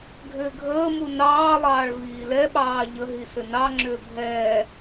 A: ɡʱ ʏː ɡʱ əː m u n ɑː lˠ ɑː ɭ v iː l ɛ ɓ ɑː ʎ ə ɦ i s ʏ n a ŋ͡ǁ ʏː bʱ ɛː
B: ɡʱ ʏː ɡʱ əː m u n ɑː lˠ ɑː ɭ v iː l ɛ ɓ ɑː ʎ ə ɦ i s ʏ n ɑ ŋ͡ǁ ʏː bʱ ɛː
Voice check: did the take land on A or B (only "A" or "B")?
B